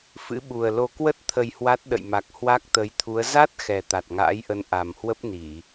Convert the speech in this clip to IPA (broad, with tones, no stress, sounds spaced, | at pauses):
f ɨ̰˧˥ ɓ u˨˩ ə̯ l o˧ k w ə˦˥ t̚ t̪ʰ ə˧ j h w a˦˥ t̚ ɗ ə̰˧˨ j m a˨˩ k̚ h w a˦˥ k̚ t̪ ə˨˦ j t̪ʰ u˨˦ ə̯ z a˦˥ t̚ x ɛ˨˩ t̪ a˨˩ t̚ ŋ a̰ː˧˥ j ʔ ə˨˦ n ʔ a˨˩ m h w ə˦˥ p̚ n i˧˩˨